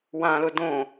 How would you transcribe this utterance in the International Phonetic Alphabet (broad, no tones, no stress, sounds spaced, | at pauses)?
w ã l ʊ d õ